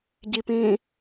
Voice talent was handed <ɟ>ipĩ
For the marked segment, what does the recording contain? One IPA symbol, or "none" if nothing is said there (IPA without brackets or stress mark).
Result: ɟ